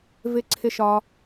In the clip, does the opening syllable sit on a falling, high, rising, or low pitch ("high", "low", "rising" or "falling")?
low